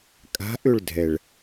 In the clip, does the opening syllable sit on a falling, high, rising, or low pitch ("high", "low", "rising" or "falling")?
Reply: rising